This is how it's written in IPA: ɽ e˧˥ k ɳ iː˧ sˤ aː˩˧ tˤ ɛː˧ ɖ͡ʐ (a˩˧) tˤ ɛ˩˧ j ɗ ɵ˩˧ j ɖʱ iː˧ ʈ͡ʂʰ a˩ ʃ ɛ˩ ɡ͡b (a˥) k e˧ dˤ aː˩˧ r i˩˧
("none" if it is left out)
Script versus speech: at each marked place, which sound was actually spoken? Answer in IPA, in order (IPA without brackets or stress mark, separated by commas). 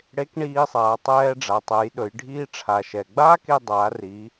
a˩˧, aː˥